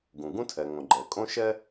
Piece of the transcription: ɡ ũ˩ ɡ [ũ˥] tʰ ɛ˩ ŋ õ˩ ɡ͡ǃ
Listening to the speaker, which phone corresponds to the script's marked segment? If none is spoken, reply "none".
ũ˥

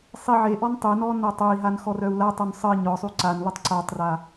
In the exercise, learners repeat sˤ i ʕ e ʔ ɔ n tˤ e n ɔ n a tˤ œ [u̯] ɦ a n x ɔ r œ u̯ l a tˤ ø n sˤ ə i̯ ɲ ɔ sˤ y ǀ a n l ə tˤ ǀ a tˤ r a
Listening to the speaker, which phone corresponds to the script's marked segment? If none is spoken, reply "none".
i̯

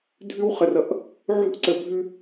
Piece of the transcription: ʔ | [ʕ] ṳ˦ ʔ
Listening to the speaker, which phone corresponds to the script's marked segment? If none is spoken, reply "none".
ʕ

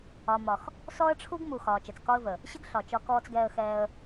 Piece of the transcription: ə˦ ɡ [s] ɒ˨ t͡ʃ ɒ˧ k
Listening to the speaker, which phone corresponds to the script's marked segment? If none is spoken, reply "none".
ɬ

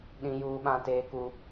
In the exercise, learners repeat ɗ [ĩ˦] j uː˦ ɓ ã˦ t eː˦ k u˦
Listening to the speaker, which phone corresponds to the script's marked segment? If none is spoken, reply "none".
ĩ˦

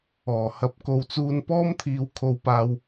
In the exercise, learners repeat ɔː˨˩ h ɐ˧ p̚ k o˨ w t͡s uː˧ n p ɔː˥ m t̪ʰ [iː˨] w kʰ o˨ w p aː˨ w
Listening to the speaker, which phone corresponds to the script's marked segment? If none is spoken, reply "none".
iː˨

